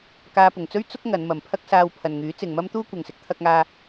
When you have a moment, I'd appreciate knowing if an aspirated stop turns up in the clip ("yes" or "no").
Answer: yes